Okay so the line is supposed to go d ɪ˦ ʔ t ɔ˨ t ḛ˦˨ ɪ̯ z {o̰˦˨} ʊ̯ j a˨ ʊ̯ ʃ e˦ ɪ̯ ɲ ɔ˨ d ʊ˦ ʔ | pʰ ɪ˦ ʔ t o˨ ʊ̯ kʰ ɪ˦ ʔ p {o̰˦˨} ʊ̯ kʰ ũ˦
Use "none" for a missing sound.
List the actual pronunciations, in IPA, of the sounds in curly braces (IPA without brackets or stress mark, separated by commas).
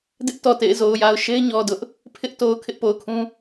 o˨, o˨